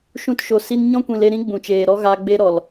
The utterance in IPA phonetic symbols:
ʃũ˧tʃo˨si˦n ɲɔ̃˦kʷĩ˨le˧ɾĩ˦ ɡ͡bũ˨t͡ʃeː˨ɾɔ˦ ɣa˦ ɡ͡be˦ ɾɔ˨l

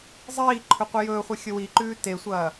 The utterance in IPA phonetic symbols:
zˤiː ǃʰɵqʷɐjɵːχʷe xʲɵwiǃʉː tesʷɐː

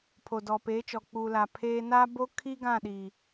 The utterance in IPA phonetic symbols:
pʰo˨dɔ˨peː˨˦t͡ʃɔ˨ k͡pu˨la˨ pʰeː˦ na˦bo˦ kʰi˦ ɡã˦˨ɗi˨

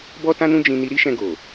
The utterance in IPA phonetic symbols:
bɔ˦tã˦nũ˦ d͡ʒĩ˦ni˦ ɾi˦ʃɛ̃˧ ɡo˨

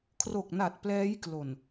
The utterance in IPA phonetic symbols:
kʰro˨˩k̚na˨˩t̚ plɛː˦˥jklo˨˩n

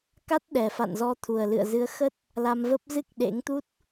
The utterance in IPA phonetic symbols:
ka˦˥t̚ɗɛ˨˩fa̰˧˨n zɔ˧t̪ʰu˨˩ə̯lɨ̰˧˨ə̯ zɨ˨˦ə̯xə˦˥t̚ | la˧mvə˦˥p̚ zɨ˦˥k̚ɗḛ˧˥ŋt̪u˦˥t̚

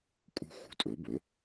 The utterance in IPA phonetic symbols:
kʼṳ˥ xṳ˩˧˩tʼɵ˩˥bɵ˩˥

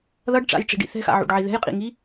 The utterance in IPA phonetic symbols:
ðʌɖʈ͡ʂa̰jʈ͡ʂi̤ɖḭ θɛ̤xa̰ʕṵɖʕi ðɛ̤jqʼḭŋi

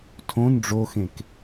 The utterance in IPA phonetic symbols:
tʰõn ɖ͡ʐoxẽk

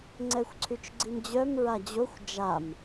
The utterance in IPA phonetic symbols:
ŋ͡ǀɛxʷǀʰyt͡ʃɡ͡ǀimd͡ʑœm ɹad͡ʑoxʷ d͡ʒam

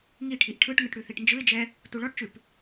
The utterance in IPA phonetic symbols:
ŋiʈʰiʔ ʈʰɯʈŋɯʈ ɽʉθiʈnd͡ʒɯɪ̯d͡ʒɛ | tuɭɔʈt͡ʃʉp

